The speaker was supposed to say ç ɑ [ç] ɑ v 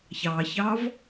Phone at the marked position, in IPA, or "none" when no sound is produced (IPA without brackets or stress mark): ç